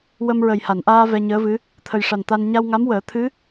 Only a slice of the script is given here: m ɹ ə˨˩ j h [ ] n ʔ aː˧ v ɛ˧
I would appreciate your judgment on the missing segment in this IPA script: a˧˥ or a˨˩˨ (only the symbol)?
a˨˩˨